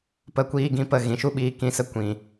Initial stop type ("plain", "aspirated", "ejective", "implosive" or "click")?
plain